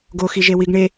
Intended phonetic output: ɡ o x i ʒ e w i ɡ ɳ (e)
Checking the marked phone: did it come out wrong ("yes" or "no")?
no